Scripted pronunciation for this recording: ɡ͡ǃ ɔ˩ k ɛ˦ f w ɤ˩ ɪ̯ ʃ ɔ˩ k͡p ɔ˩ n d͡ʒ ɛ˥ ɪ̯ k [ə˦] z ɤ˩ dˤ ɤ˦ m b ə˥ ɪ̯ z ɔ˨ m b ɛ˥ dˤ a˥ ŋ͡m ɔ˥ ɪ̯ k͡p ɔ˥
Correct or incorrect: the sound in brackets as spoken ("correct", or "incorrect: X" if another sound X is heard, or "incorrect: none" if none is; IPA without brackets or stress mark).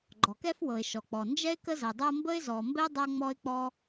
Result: correct